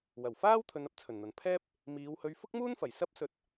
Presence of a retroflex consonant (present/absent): absent